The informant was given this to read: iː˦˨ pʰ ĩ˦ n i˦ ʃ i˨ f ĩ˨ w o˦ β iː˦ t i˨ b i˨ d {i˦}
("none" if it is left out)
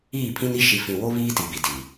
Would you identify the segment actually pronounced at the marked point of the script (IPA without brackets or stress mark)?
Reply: i˨